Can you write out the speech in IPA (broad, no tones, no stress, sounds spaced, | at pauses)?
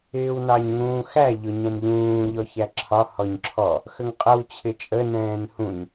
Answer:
ɪː w n ɑ ɲ ŋ ũː x æ ʎ ʊ ɲ ɛ̃ n ʎ ũː ʎ ɔ ç æ ǁʰ ɒ h ɔ ɲ ǁʰ ɔ | x ə ŋ qʼ ʌ w t͡ɕʰ ɪ t͡ʃʼ ə n ɛ̃ː n h ũ ɲ